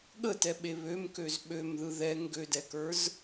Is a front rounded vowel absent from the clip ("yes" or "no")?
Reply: no